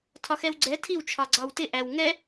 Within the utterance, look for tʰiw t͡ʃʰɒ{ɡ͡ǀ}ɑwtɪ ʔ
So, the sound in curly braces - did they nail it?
yes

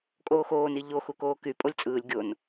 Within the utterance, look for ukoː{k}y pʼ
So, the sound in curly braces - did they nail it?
yes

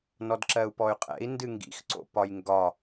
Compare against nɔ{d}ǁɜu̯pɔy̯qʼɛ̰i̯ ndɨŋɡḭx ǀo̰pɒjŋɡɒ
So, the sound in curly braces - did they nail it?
yes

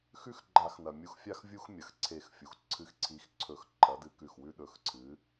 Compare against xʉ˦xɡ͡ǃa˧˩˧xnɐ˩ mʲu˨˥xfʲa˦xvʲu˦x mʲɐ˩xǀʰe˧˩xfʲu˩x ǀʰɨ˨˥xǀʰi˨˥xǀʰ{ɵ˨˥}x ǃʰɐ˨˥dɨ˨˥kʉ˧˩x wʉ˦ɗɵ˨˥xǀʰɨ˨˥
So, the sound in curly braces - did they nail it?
no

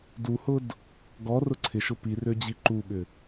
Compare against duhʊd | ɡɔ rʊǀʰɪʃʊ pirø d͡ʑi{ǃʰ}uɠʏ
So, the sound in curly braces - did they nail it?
no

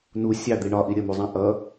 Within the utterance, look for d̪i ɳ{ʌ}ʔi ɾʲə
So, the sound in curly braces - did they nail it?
no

